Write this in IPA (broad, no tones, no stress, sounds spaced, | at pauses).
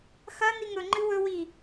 x ɐ n i ŋ ɵ ŋ͡ǃ ɨ w ɵ w i